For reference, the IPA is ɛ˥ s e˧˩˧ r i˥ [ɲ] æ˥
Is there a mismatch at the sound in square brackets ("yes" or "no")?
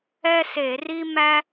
yes